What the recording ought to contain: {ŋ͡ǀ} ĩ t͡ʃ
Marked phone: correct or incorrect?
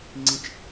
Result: correct